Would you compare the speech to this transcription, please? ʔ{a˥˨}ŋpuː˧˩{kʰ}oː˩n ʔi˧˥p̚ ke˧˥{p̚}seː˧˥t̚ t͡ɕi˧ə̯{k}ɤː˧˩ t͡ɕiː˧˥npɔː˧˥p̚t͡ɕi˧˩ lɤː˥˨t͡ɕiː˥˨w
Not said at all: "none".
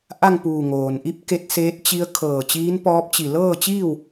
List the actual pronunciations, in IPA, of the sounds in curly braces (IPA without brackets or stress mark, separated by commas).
a˥˨, ŋ, t̚, kʰ